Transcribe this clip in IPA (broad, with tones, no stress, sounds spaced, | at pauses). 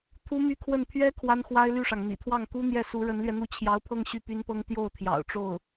t̪ʰ u˥ m y˥ kʰ w ə˥˩ n pʰ ɥ ɛ˥ kʰ w a˥ n x w a˥ ɪ̯ l y˥˩ ʂ ɑ˩ ŋ n̪ ḭ˨˩ t̪ʰ w ɑ˥˩ ŋ k u˥ n̪ j ɛ˥˩ s u˧˥ ɻ ə˧˥ n l ɥ ɛ˧ n̪ u˥˩ t͡ɕʰ j ɑ˧˥ ʊ̯ pʰ ɤ˥˧ ŋ ɕ y˥˩ p y˥ n p ɤ˥ ŋ t̪ j o˥˩ ʊ̯ t̪ʰ j ɑ̰˨˩ ʊ̯ ʈ͡ʂ o˥˩ ʊ̯